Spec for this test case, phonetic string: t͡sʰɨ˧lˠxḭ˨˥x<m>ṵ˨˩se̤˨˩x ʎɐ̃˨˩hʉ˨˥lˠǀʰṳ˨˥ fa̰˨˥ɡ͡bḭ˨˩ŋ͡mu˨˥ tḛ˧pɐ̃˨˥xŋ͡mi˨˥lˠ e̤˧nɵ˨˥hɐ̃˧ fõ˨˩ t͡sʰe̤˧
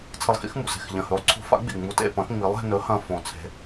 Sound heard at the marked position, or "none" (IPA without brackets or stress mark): m